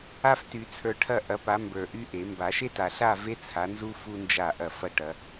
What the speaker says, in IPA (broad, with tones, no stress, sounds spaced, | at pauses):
a˥ f t y˨˩˦ t͡sʰ ə˞˨˦ ʈʰ ɐ˥˧ ʔ ɐ˨˦ p a˨˦ m b ə˞˨ ʔ y˥ ʔ e˨˩˦ m b a˨˩˦ ʃ e˥ t a˨ ɬ a˥˧ v e˥ t͡sʰ a˨˦ n z u˥ f u˥ n d͡ʒ a˥˩ ʔ ɐ˥˩ f ɐ˥˧ ʈ ɐ˨˦